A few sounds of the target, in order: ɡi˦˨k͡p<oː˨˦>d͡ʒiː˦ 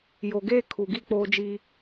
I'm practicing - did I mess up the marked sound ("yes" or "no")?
yes